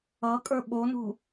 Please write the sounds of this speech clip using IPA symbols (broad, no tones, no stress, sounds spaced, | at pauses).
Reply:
ʌ kʼ ə˞ ɓ o n ṳ